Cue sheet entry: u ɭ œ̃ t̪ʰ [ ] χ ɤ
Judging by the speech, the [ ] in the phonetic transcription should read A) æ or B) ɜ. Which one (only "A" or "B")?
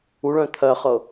B